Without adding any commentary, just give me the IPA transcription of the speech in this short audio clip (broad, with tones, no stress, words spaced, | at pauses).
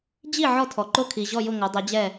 d͡ʑi˥˩ ʕɔ˥˩tʰɔ˩ ǃo˥˩kʰi˩ʑɔ˥˩jʊ˥˩ ŋo˩˥dˤɛ˩˥d͡ʑɛ˥˩